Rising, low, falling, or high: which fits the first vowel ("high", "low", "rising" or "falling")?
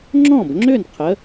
falling